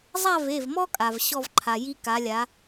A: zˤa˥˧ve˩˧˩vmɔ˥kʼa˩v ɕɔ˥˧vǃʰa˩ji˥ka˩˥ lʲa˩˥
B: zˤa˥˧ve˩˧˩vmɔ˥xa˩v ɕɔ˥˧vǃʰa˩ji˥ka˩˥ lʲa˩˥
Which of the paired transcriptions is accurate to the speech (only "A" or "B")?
A